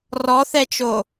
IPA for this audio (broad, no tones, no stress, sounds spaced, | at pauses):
r ɔ θ ɛ t͡ʃ o